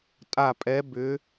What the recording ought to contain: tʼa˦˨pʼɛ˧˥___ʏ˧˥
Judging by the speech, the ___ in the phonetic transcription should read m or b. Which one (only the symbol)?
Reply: b